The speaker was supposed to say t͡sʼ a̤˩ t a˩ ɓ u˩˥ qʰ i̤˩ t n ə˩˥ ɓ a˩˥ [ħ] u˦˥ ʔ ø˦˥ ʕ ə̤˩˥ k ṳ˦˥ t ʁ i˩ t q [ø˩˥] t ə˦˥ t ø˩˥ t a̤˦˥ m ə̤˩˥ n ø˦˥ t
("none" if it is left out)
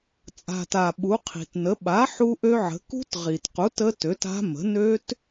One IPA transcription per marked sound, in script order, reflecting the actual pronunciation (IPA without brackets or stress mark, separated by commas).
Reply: ħ, u˩˥